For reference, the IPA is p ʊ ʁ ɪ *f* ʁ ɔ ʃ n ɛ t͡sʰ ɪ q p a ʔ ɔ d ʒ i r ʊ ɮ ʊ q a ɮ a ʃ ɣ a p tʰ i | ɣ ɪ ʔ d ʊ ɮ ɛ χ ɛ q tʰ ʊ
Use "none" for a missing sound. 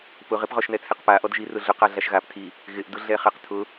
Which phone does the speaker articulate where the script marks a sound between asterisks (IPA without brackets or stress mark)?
p